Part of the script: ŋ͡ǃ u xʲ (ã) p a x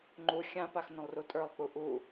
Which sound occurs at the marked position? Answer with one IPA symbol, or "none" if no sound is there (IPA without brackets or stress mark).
ã